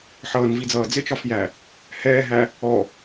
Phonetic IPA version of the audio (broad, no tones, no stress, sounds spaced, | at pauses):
ħ ʌː n v i d͡z ʌː d͡z ɪ t͡ʃ ɒ f j æ | h ɛː ɦ æ | ɔ